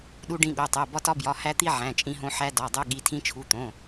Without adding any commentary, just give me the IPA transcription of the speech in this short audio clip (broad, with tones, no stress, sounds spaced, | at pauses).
ɗ u˧ ɖ ĩ˧ ɠ o˩˧˩ tˤ o˩˧˩ b ɒ˧ t ɒ˧ b j ɒ˩˧˩ h æ˧ t̪ i˧ ʕ æ̃˩˧˩ t͡ʃʼ ĩ˧ ɦ õ˧ ħ æ˧ d ɒ˩˧˩ dˤ o˧ ɠ i˩˧˩ tʰ ĩ˧ t͡ʃʰ u˩˧˩ t̪ õ˩˧˩